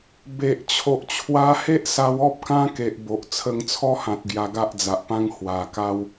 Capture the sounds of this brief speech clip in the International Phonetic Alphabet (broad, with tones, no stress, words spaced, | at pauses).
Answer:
be˨ʔ t͡ɕʰo˨ʔt͡ɕʰwa˧he˦ʔsa˧w ɔ˦p̚kã˦ke˨ʔ bo˨ʔ t͡sʰə˧ŋt͡sʰɔ˦hã˨t̚ ɡja˧ɡa˦ʔd͡za˨ʔpã˦ŋ hwa˨˩ka˦w